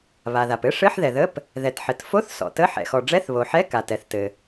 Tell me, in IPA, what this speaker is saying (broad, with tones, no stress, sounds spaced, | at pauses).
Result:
β a˩ ð a˩ p ɘ˧˥˧ ʂ ɘ˧˥˧ ħ ð ɛ˩ ð ə˧˥˧ p | ð ɛ˩ t ħ ɘ˩ t f o˧˥˧ θ s ɔ̰˩ t ə˧˥˧ ħ ɛ̰˩ x ɔ˩ ɖ͡ʐ ɛ˧˥˧ θ β o˩ ħ ɛ˧˥˧ k a˩ t ɛ˩ θ t ɘ˩